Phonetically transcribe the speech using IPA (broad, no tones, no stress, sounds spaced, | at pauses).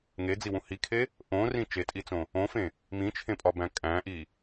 ŋ e d͡z i w ũ h i kʰ e | ʔ õ r ĩ t͡ʃ e tʼ i t͡s õ | õ f ẽ | m ĩ t͡ʃʰ ẽ pʼ ɒ b æ̃ kʼ æ̃ ʔ i